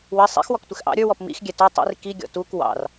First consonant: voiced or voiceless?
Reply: voiced